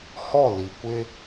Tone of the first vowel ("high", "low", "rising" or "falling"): falling